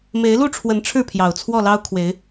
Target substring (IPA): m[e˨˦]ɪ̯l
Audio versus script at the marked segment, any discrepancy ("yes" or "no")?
no